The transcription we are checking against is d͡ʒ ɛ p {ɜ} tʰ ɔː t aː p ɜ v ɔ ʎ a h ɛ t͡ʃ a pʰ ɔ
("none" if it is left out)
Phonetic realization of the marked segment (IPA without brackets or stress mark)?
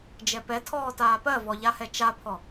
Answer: ɛ